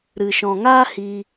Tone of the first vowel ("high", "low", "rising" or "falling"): low